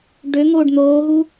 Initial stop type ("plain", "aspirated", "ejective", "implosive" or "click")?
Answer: plain